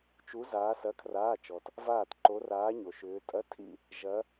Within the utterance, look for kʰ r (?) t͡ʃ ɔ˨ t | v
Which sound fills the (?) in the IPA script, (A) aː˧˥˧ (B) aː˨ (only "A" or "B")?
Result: A